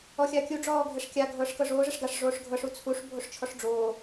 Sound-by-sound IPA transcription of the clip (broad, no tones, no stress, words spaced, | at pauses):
ɔxʲakʲu ɖ͡ʐɔːɡʱɛʂkʲa ɡʱɤːʂkɤʐoː ʐɛʂɡaʂ ʐoːʂɡʱɤʂ ut͡sʰuʂ bʱoʂt͡ʃʰɔʂɖ͡ʐoː